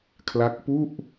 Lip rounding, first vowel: unrounded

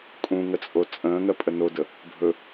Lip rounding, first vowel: rounded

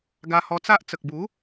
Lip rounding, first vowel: unrounded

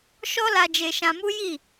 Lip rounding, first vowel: rounded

